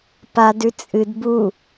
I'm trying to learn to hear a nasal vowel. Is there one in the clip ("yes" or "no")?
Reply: no